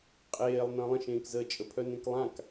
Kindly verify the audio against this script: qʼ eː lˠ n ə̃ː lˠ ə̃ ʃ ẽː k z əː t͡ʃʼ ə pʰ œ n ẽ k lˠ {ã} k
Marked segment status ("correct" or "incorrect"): correct